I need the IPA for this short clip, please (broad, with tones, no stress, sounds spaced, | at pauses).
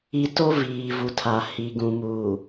i˨ t o˦ v iː˨ v u˨ tʰ a˨ h i˨ ɡ ũ˨ m uː˨